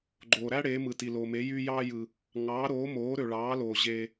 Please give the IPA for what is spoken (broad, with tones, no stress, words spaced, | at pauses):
ɡ͡ǃoː˨ɾæ˥ ɽeː˨˥mɯ˨ti˨ loː˨me˨˥ jyː˥jɑː˥jɯ˨ | ŋɑː˨˥ɾoː˨˥moː˨˥ ɾø˨ɭɑː˨˥loː˨ ʑeː˨